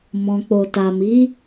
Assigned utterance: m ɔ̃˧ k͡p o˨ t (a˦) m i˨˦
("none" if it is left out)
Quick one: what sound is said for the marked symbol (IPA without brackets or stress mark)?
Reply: a˨